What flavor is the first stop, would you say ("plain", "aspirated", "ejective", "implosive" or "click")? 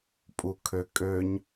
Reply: ejective